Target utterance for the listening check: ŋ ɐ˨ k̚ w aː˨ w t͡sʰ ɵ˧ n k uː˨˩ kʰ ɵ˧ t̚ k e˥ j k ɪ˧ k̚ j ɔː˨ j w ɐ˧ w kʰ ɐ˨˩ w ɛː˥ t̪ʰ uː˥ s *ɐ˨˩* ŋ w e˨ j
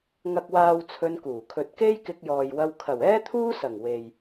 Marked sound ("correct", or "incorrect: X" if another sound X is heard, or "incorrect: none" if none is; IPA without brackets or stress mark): correct